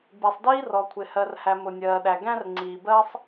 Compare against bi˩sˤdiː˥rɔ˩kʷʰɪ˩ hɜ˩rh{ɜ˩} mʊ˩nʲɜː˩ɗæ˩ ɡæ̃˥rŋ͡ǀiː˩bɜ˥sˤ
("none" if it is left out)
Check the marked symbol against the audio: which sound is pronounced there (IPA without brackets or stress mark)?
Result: æ˩